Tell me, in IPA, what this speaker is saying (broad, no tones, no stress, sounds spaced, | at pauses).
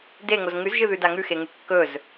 d e ŋ o z ŋ ʉ z ʒ ɨ ð ʉ d a ŋ ʉ x e ŋ ʉ kː ɵ z